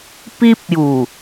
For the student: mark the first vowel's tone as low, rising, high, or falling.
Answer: high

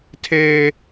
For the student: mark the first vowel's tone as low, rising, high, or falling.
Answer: high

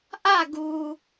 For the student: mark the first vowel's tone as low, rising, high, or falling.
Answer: falling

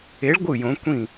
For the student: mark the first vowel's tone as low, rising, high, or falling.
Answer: rising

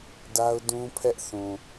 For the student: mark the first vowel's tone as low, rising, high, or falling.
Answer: high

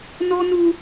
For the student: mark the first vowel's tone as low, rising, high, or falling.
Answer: high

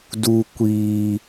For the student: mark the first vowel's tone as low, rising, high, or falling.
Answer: high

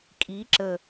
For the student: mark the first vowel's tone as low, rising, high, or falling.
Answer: rising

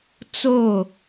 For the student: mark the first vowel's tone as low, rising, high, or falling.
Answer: falling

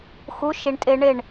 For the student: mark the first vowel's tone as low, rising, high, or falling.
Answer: rising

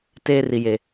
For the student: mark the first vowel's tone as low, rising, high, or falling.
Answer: high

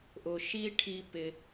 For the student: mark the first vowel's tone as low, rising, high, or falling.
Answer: low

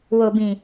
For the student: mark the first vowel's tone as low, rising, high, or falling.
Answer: low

